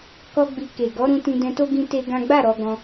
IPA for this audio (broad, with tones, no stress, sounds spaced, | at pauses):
k ɔ˦ ɡ͡b i˧ k e˨ ɡ ɔ˨˦ ɾ ũ˧ t ĩ˧ d ɛ̃˧ t o˦ ɡ ĩ˦ t e˦ ɡ ã˦ ɡ͡b a˦˨ ɾ ɔ˧ ɡ ɔ̃˧